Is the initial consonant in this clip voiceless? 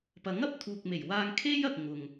yes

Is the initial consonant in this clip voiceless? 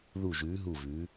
no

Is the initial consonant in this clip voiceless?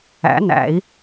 no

